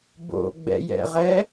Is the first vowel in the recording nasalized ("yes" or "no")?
no